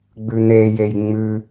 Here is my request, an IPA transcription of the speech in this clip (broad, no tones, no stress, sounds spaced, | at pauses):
ɡ͡b ʉ n̪ e j e j ŋ͡m ʉ